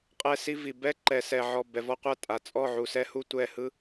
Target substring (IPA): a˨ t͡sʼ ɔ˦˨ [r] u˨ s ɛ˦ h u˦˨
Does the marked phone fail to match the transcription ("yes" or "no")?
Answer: yes